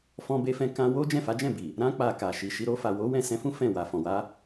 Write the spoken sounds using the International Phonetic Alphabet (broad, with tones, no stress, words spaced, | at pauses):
fɔ̃˧be˧fɛ̃˧ kã˧wo˦ d͡ʒɛ̃˦˨fa˨˦d͡ʒɛ̃˦˨bi˨ | ɾã˧k͡pa˨ ka˨ʃi˨ʃi˨˦ ɾo˧fa˨wo˨˦ wɛ̃˦˨sɛ̃˧fũ˦ fɛ̃˦˨wa˨ fɔ̃˨wa˨˦